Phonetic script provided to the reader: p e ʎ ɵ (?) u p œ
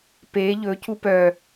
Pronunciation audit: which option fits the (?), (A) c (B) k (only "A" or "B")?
A